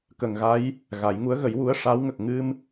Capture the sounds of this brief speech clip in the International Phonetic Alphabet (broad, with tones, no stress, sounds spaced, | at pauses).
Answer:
k ə˨˩ ŋ ɣ a˧˥ j | ɣ a˨˩˦ j ŋ u˧˥ ə̯ ɣ ə˨˩˦ j w u˧˥ ə̯ ʂ a˧˥ w ŋ ə˨˩ k̚ ŋ ɨ˧ m